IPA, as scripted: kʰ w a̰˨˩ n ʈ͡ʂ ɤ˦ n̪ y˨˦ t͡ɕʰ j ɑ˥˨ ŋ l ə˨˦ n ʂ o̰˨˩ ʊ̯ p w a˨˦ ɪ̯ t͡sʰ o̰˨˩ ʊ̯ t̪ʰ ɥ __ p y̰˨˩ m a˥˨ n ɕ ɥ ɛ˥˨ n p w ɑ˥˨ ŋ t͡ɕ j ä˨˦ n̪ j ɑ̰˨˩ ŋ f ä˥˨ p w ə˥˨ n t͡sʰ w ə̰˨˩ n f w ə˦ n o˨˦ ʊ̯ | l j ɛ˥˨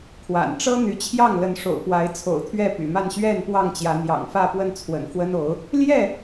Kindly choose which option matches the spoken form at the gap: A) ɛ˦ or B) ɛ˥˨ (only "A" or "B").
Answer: B